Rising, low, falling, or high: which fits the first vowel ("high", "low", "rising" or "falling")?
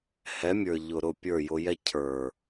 rising